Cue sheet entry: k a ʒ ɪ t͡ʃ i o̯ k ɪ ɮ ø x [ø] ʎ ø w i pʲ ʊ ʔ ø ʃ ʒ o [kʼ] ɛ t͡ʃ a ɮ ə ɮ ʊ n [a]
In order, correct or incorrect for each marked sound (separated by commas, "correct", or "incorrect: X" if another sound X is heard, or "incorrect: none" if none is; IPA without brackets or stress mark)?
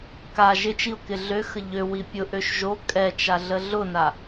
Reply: incorrect: ə, correct, correct